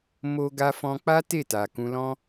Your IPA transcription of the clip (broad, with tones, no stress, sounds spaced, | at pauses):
m o˧ ɡ a˧ f ɔ̃˧ k͡p a˦ t e˦˨ t a˨ k ũ˧ l ɔ̃˦